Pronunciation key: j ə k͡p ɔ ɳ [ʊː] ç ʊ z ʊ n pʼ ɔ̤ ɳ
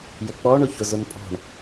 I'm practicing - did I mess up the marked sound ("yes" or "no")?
yes